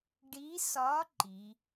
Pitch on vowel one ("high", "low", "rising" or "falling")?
rising